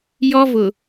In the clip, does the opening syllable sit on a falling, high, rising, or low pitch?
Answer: high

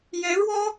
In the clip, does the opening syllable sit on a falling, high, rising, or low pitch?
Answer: rising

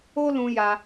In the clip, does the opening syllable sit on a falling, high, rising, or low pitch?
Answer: high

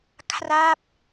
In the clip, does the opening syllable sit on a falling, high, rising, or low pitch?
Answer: falling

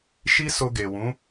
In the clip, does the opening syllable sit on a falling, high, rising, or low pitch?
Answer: high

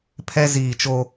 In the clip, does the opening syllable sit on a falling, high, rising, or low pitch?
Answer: high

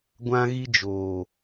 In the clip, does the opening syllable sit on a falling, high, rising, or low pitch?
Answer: high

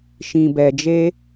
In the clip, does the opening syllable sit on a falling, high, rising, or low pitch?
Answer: low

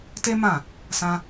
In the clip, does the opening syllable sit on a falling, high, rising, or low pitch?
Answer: high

